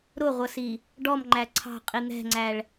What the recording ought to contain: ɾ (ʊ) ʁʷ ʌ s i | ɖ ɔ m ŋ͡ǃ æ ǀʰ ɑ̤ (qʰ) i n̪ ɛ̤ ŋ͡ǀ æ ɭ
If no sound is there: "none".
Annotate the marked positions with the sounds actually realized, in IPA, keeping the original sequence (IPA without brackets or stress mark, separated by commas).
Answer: ʊ, qʼ